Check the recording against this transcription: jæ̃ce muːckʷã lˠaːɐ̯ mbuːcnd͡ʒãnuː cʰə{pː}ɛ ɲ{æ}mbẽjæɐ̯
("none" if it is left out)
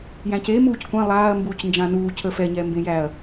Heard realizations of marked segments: f, ɛ

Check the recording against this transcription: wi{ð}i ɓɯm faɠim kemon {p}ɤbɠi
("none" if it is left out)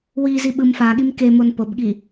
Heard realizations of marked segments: z, p

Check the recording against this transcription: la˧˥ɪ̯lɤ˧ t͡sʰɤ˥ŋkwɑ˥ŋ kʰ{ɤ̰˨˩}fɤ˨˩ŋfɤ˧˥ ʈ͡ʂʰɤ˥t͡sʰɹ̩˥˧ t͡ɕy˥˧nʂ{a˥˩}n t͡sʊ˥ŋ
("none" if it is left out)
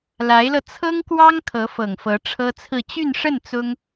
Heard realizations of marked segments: ɤ˧˥, ə˥˩

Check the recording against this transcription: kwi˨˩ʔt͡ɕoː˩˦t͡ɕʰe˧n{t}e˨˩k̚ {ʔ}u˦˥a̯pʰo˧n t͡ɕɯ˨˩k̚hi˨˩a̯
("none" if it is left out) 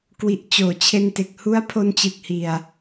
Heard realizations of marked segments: t, h

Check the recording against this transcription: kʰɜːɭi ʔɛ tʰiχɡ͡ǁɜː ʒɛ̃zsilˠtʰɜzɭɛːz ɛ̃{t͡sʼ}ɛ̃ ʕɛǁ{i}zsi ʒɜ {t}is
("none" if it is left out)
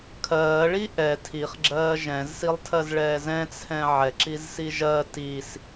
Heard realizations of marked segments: t͡sʰ, i, t

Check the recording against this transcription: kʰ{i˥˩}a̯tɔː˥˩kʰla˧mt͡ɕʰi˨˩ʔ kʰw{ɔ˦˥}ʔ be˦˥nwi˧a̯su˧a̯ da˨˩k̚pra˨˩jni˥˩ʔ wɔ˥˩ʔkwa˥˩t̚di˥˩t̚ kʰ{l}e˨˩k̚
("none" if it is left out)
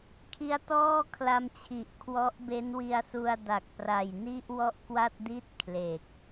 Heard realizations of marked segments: i˦˥, ɔ˦˥, l

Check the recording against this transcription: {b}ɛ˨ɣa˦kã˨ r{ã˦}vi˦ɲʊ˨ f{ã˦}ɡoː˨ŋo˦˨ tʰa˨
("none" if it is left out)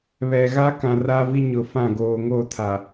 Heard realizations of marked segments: β, a˦, ã˦˨

